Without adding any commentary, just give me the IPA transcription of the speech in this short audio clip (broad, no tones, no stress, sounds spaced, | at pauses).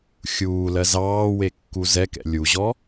xʲ uː l ɜ z ɑː w e kː u z ɛ k ɛ̰ lʲ u ʑ ɔ